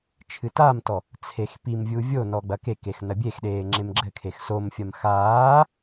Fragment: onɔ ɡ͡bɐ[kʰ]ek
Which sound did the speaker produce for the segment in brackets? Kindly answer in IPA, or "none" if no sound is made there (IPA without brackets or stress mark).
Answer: k